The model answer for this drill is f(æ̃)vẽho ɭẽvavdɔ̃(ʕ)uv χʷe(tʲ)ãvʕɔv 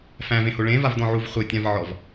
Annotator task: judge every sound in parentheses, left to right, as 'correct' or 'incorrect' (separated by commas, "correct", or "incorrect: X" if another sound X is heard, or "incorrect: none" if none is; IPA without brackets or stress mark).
correct, correct, correct